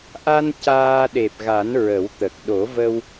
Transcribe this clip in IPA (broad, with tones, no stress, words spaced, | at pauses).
ʔa˧n caː˧ɗe˨˩p̚ɣa˨˩˦n ɹə˨˩˦wt̪ə˨˩k̚ ɗo˨˩˦və˧w